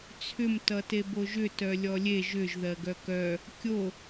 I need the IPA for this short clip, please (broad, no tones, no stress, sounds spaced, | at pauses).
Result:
t͡sʰ ʏ m t ʌ t e b o ʒ ʏ t œ lʲ ɔ lʲ e ʒ ʏ ʒ ð ɜ ɡ œ k œ | kʲ o